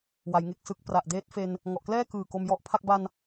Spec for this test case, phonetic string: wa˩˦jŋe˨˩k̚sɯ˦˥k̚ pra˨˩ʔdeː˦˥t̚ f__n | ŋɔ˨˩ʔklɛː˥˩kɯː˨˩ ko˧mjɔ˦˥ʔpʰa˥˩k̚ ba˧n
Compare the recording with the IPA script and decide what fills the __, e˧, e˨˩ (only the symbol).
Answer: e˧